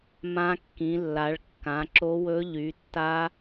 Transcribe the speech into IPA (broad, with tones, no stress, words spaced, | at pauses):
mã˦˥kːĩ˨˦lːa˨˦ɭ kːã˨˦ǁo˦˥wɵ˦˥ ʎy˨˦tːa˦˥